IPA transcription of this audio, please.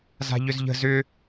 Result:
z a̤ ʎ ʏ z ʎ ə̤ z ʏ

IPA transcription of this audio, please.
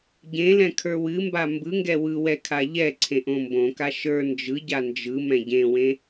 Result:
ɟ ẽ l ɛ̃ kʰ ə˞ w ɨ m b a m b ɯ ŋ ɡ ɛ w ɯ w ɛ kʰ a ʎ ɛ ǀʰ ẽ ʔ õ m b õ k a ʃ ə˞ n d͡ʒ ɯ ɟ a n d͡ʒ ɯ m ɛ̃ ɟ ẽ w ẽ

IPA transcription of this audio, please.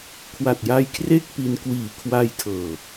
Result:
kʰ w a˨˩ t̚ j a˧ j kʰ r e˥˩ k̚ p i˧ n k w iː˨˩ kʰ w a˧ j tʰ ɤː˨˩

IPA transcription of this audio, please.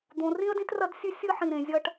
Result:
d̪ õ˨ r ĩ˦ ə̯ d ĩ˦ t r ɐ˦ d sʲ ʉ˦ sʲ ɨ˦ ħ ĩ˨ ɾ ẽ˨ zʲ ɐ˦ ʈ

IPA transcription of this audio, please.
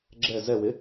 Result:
ɡ͡ǁ ɛ z ɛ w ɪ

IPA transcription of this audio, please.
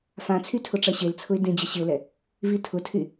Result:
f ã t͡sʰ y tʰ ʊ ʈ͡ʂ ɐ ɕ e l t͡sʰ ʊ ɪ̯ d ẽ d͡ʑ ə ɕ ɪ ʊ̯ l ɛ | v i tʰ ʊ tʰ y

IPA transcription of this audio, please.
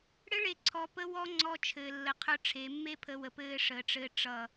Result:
ɽ ɘ˦ ɭ e˨ ǀʰ ɔ˨ p ə˦ w ɔ˦ ŋ͡ǀ ɔ˦ t͡ʃʰ ɘː˨ lː ə˨˦ qʰ ə˞˦ ʈ͡ʂʰ e˨˦ mː e˦ pʰ ə˨ w ə˨ p ɘː˦ ʂ əː˨ ʈ͡ʂ ɘː˦ ʈ͡ʂ ʌ˦˨

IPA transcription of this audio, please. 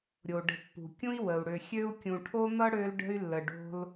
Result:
ɾʲ o˩ ɖ ə̤˨ pː ṳ˩ kʲ ũ˥ i̯ w ə˩ u̯ ɽ ø˨ xʲ ø˥ u̯ kʲ ũ˨ ʈʰ o˥ n̪ ʌ˥ ɽ ø˥ l ɖ ə̤˥ y̯ lː ə˨ ɖ o̤˦ l

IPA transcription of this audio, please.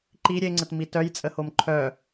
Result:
ǃ i ɾʲ e ŋ͡ǀ ə t m i t œ j t͡sʼ ə h o m ǃʰ œ

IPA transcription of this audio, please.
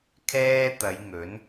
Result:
kʰ ɛː˥ t̪ ɐ˨˧ j ŋ ɵ˨˥ n

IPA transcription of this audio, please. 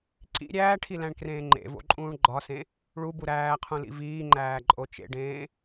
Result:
ǀ ḭ ɾʲ æː ʈʰ i l æ̃ ɳ k r ẽː ŋ͡ǃ ḛ v o̰ ǃʼ ũː ɳ ɡ͡ǃ ɒ s ẽ | ɭ u b u ɾ æː qʰ ũ l ḭ v iː ŋ͡ǃ æː ǃʼ o t͡ʃ ḛ ɖ ẽː

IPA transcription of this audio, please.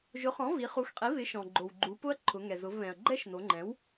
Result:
ʒ ʊ˩˥ χ ɔ̃˩˥ v i˩˧ χ u˩˥ x qʼ i˩˥ β ɪ˩˥ ʃ ɔ̃˩ ɡ͡ǃ o˩ w ɡ͡ǃ u˩˧ p ʊ˦˥ ɐ̯ ǃʰ ʊ˩˧ ŋ ɛ˩ z ʊ˩˧ v β ɛ̃˩ ɐ̯ ɡ͡ǃ ɛ˦˥ ʃ n o˩˧ ŋ͡ǃ ɛ̃˩˥ w

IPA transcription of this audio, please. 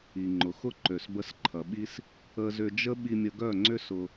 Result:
i˨ ŋ͡ǃ ʊ˨ x ʊ˦ ǃ ø˨ s b ə˧ s ǃʰ ɐ˨ ɓ i˦ s | ə˦ z ʏ˦ d͡ʒ ə˦ ɓ i˧ mʲ ə˧ ɡ œ˦˨ ŋ͡ǀ ʏ˦ s ʊ˧

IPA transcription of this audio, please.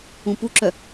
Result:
ũ p u ǁ œ

